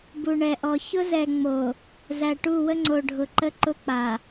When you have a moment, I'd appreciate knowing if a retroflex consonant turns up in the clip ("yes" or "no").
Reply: yes